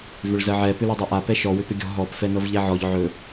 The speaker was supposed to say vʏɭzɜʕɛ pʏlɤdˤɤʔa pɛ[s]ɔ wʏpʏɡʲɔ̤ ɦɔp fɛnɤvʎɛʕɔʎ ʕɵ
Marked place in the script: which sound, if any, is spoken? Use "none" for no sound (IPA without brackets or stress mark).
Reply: ʃ